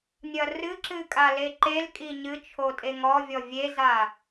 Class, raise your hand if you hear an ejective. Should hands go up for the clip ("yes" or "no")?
yes